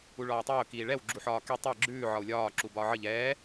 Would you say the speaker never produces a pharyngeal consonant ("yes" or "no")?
no